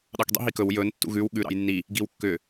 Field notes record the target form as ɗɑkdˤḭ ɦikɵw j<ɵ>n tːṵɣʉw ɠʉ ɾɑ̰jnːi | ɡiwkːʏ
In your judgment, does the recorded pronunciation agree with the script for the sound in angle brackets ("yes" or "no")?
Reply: yes